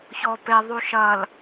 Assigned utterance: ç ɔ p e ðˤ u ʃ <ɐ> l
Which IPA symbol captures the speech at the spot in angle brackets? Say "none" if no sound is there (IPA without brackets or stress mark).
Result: ɐ